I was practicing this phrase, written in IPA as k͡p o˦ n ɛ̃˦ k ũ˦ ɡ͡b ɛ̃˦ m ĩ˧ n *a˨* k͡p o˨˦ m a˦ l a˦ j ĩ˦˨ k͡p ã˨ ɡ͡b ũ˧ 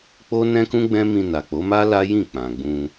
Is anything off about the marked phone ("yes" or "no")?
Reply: no